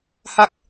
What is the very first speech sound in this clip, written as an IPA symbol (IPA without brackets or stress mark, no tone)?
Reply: h